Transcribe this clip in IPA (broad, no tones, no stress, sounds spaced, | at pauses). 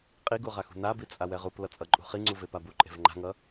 qʼ i ɡ u ʁ a x ṳ n a b i t͡sʼ a w ɛ ʁ u p l ʌ t͡sʼ ʌ ǃʼ ṳ χ i ŋ͡ǀ u v e p a b u ǃʼ e̤ v ŋ͡ǃ a̤ ŋ ʌ